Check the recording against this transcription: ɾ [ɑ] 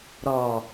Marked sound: incorrect: ɔ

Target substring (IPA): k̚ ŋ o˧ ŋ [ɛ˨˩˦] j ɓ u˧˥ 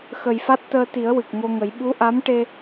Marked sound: incorrect: ə˨˩˦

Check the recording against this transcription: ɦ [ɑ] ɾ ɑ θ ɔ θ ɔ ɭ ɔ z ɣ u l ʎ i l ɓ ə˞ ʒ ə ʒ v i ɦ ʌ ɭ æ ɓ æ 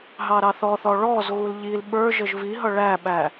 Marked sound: correct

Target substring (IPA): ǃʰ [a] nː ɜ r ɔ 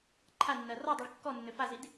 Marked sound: correct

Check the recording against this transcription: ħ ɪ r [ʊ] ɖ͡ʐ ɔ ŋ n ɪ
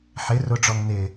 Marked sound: correct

